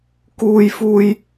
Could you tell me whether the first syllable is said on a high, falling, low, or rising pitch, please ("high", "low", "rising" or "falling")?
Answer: high